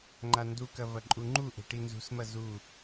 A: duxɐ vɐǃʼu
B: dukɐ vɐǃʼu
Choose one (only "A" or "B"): B